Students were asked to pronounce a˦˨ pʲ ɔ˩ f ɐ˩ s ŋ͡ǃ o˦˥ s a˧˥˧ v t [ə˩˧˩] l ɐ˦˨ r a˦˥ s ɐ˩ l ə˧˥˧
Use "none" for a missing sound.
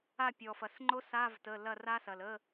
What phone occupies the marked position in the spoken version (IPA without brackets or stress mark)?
ə˩˧˩